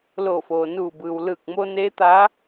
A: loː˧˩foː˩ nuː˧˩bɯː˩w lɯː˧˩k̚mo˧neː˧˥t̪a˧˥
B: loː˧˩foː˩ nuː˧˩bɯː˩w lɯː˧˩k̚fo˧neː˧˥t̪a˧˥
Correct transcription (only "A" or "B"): A